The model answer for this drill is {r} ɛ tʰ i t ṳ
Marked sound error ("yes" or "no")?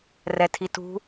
no